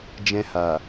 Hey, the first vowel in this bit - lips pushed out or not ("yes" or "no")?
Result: no